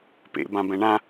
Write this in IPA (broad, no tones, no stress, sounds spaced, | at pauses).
p ḛ b ã b ɛ̃ ɳ ã